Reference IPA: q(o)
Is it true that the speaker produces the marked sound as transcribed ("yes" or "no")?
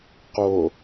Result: yes